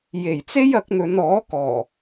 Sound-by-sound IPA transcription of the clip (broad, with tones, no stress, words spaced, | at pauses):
je˨˩jt͡se˥j ɐ˨˥k̚n̪ɵ˨˧n ɔː˨˥kɔː˨˩